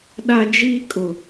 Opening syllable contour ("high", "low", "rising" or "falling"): high